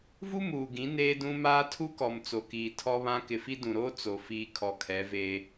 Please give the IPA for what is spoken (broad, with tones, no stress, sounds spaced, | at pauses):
v u˦ m uː˨ ɡ ĩ˨˦ n eː˦ d ũ˦ m aː˦ tʰ u˦ k ɔ˨ m t͡s o˨ k iː˨ tʰ ɔ˦ β ã˦ k ɪ˨ f i˦ d ũ˨ ɾ oː˦ t͡s o˨ f iː˨ kʰ ɔ˨ kʰ ɛ˨˦ v eː˦